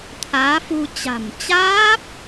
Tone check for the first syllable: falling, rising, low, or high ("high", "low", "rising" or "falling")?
rising